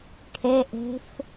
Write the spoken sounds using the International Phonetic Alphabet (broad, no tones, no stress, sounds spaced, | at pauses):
kʰ ɛ ʔ ɛ̤ f